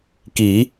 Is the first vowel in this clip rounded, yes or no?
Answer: no